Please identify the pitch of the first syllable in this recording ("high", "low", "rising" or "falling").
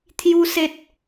high